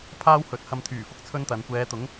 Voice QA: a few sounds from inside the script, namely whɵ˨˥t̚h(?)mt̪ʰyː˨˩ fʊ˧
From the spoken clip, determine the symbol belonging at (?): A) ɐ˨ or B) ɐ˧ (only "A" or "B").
B